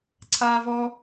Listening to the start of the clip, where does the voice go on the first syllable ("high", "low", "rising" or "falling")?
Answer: high